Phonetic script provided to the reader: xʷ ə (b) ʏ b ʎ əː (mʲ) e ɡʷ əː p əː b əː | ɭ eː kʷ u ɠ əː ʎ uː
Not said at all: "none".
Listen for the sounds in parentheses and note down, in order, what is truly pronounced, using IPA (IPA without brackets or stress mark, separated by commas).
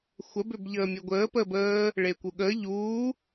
b, mʲ